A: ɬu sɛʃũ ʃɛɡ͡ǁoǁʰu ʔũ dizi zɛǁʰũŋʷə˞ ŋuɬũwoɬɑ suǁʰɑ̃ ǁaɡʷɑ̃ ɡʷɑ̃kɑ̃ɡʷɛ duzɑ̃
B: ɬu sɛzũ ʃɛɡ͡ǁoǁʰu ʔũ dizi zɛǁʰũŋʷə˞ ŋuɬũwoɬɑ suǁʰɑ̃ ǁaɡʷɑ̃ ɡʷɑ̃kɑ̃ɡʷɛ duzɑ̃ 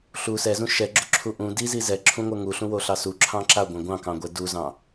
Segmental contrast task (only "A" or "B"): B